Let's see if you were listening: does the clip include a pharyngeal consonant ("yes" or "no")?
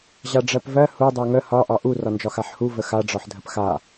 yes